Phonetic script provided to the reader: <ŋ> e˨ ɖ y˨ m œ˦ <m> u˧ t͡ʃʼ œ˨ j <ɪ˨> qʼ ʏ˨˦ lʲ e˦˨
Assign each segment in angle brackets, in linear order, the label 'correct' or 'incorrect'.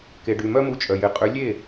incorrect: k, correct, correct

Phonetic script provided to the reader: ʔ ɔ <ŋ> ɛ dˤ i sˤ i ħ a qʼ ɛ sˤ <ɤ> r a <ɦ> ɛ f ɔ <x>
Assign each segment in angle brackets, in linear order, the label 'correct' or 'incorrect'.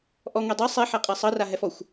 correct, correct, correct, incorrect: xʷ

